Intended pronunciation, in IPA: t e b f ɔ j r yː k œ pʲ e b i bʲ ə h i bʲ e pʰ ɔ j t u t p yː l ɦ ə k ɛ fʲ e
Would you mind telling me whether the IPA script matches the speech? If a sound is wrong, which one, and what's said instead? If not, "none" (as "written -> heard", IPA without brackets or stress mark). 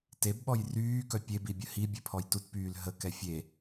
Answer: f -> ɓ